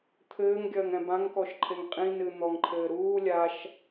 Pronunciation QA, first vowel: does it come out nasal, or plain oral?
oral